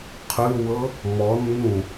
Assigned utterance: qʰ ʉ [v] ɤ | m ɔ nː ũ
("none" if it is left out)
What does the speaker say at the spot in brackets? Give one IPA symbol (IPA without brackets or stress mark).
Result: w